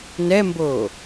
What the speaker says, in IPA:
n ɛ m b oː

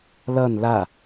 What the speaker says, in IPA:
l ʌ n l a

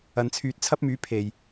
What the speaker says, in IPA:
ɐ˨ n t͡sʰ yː˨˥ t̚ t͡sʰ ɐ˥ p̚ m yː˨˥ pʰ e˨˩ j

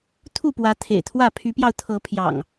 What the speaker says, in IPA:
t̪ʰ u˥˨ p w ä˨˦ t̪ʰ ḛ˨˩ ɪ̯ t̪ʰ w ä˥˨ pʰ y˨˦ p j ɑ˧ ʊ̯ t̪ʰ ɤ˨˦ pʰ j ɑ̰˨˩ ŋ

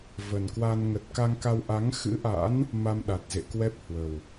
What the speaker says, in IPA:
v ə˨˩ n k w a˧ n ŋ ə˨˩ t̚ k a˧ ŋ k a˧ w ʔ a˨˦ ŋ x ɨ̰˧˥ ʔ a̰˧˥ n | m a˧ m ɗ a˨˩ t̚ z ḛ˧˨ k w ɛ˦˥ p̚ h w ə˨˩ w

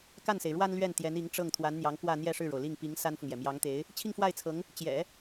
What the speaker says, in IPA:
k a˥˩ n s e˩ ɪ̯ ɻ w a˥ n l ɥ ɛ˥˩ n t̪ j ɛ˧˥ n i˧˥ ŋ ʈ͡ʂ ɤ˥˩ ŋ t̪ʰ w a˧˥ n n̪ j ɑ˧˥ ŋ k w ä˥˧ n̪ j ɛ˥˧ ʂ ɻ̩˥˩ ɻ o˩ ʊ̯ l i˥˩ ŋ p i˧˥ ŋ s a˥ n f ʊ˨ ŋ j ɛ˩ m j ɑ˧˥ ŋ t̪ e˧˥ ɪ̯ | t͡ɕʰ i˥˧ ŋ f w a˥˩ ɪ̯ t͡sʰ ɤ˧˥ ŋ | t͡ɕ j ɛ̰˨˩˦

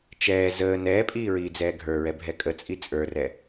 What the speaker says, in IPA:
t͡ʃ ɛː z əː n ɛː pʼ iː ɹ iː d͡z ɛː ɡʱ ə˞ ɹ ɛ bʱ ɛ kʼ ə t͡sʼ i t͡sʼ ə˞ r ɛ

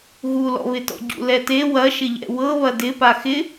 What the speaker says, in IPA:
ɣ u l ɔ̰ β ɪ t ɔ̰ ɟ ṵ l ɛ t e w ɐ ʃ ɪ ʎ ɛ̰ w ɤ β ɐ d ɪ p a x ɪ

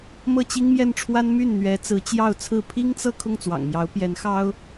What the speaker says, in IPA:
m ɤ˥˩ t͡ɕ i˥ ŋ m j ɛ˥˩ n ʈ͡ʂʰ w a˥ n m y˥˩ n n̪ ɥ ɛ˧˥ t͡s ɹ̩˧˥ t͡ɕ j ɑ˥˧ ʊ̯ t͡sʰ ɹ̩˥˩ pʰ i˥ ŋ t͡s ɤ˥˧ kʰ ʊ˥˩ ŋ t͡s w ɑ̰˨˩ ŋ m j ɑ˧˥ ʊ̯ p j ɛ˧˥ n x ɑ˥ ʊ̯

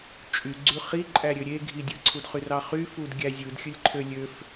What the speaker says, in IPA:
t͡ʃʼ y ɡ͡ǀ y χ i ǃʼ æ ɾʲ ø ɾʲ e ɡʱ i dʲ ɯ ǀʰ u d χ y r ɑ χ y f u d ɡʲ æ zʲ ɯ d xʲ ɯ lʲ ǃʰ ø lʲ ø f

